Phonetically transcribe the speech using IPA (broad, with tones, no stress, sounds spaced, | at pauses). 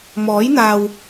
m ɔː˨˥ j n̪ aː˨ w